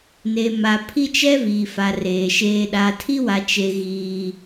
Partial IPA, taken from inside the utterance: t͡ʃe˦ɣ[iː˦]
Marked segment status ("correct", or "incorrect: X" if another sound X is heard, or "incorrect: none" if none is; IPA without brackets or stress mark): correct